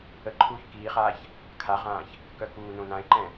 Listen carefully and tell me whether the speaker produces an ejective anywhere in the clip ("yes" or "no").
no